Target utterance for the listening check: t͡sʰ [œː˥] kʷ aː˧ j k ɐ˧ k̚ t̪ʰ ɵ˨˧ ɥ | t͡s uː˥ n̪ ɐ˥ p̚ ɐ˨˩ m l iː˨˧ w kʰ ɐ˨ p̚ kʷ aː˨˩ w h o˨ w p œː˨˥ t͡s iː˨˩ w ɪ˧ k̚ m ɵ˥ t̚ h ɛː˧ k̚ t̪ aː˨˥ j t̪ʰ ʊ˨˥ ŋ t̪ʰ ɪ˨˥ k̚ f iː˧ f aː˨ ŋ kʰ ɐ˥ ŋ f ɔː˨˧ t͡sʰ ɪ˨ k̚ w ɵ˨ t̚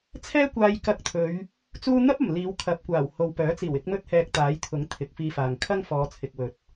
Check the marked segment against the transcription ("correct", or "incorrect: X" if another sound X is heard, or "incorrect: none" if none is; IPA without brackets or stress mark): incorrect: ɛː˥